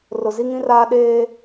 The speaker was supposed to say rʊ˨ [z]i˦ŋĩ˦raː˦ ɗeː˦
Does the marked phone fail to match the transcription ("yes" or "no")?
no